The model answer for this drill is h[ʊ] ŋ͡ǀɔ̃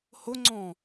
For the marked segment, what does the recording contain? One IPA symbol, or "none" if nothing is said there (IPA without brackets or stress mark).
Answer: ʊ